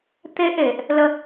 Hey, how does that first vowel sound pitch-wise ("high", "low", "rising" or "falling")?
high